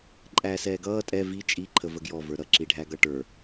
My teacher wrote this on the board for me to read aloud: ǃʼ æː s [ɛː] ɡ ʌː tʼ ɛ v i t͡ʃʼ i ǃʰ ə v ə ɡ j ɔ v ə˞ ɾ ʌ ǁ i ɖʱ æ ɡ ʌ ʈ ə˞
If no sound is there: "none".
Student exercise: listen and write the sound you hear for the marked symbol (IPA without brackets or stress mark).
ɛː